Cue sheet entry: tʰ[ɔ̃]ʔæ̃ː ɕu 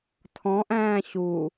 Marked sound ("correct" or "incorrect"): correct